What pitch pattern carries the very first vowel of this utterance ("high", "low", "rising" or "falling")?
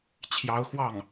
rising